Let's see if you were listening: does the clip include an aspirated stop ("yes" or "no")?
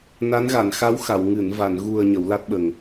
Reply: no